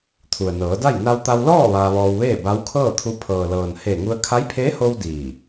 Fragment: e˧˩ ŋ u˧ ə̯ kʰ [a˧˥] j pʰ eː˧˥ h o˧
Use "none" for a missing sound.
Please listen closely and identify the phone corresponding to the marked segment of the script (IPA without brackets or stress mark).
a˧˥